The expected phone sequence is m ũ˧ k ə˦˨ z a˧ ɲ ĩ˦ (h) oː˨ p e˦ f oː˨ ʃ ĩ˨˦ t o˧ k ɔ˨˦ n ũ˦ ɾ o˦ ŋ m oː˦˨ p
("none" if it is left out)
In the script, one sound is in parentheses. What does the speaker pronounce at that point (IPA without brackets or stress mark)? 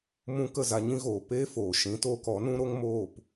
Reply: ɣ